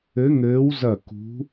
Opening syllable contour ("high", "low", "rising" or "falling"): rising